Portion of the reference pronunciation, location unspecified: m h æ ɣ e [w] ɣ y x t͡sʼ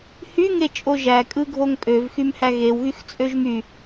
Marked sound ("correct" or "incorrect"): correct